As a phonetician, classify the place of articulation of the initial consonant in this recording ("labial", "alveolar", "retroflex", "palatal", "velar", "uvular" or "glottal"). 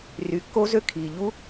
alveolar